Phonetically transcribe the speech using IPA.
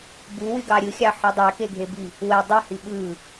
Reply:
buwyɡɑ ɾʲɯxʲɑħu dˤækeɡʱebi | we dˤihi ɓɯ

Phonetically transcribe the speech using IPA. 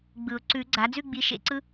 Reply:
ɡ͡bɯ˨˩˦ʊ̯ ǀʉ˨˩˦ ɡ͡ǀa˩˥ d͡zʉ˥˧ɡ͡bi˩˥ ʃḛ˥˧ǀɯ˥

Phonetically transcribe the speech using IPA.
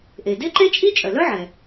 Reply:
ʔe˩de˥ǃe˥t͡ʃʼi˥ t͡ʃʼœ˩lœ˥ʕɛ˩

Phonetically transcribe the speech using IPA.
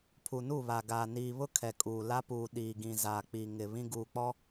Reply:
pʰu˨nu˦˨βa˨ɡaː˨ niː˨βʊ˦ kʰɛ˨kʼuː˨ la˦puː˨ ɗiː˨ɡĩ˨ za˨k͡pi˨ ŋɪ˨ βĩ˦ɡuː˨k͡pɔ˦

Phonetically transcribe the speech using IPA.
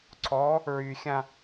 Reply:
ǀʰɔ | ɹyxʲã

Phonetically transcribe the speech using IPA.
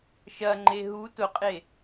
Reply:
ʃɐŋ͡ǃe ɦu tʊqʼe

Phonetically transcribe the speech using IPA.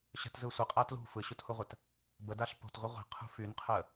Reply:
ɕə̤tzɯ sʷəqʼa tlṳ fɯɕuthuʁʷət | bədaɬ po̤tʁʷɯ ʁʷi̤qʰṳ fynqʰə

